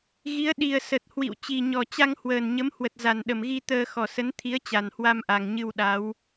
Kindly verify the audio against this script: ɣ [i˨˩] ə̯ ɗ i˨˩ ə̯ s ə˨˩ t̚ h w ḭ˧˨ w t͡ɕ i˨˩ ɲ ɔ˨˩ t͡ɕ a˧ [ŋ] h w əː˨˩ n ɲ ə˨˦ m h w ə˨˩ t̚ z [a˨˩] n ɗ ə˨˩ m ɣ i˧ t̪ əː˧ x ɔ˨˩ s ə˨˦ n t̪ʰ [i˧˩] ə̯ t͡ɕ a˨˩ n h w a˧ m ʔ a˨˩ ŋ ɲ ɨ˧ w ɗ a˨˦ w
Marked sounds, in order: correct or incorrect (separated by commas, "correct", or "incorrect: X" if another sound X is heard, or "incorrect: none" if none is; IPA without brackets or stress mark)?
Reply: incorrect: i˨˦, correct, correct, incorrect: i˨˦